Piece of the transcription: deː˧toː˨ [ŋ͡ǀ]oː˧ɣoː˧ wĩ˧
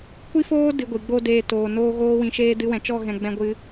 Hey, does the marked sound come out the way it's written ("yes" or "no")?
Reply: no